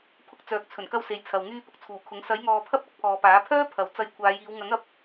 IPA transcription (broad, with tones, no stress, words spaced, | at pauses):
pʰʊ˧k̚t͡sœː˨k̚ t͡sʰɵ˨˩nkɐ˧w se˨jt͡sʰɐ˨w ŋyː˧pʊ˨˥k̚t͡sʰuː˨˩kʰʊ˨˥ŋ sɐ˨˥jŋɔː˨ pʰɐ˥p̚ɐ˥k̚pʰɔː˨paː˨˥ pʰœː˥pʰɐ˨˥w t͡sɐ˧j kʷʰaː˨˧jiː˨˧w ŋɐ˨˥ŋɐ˨˥p̚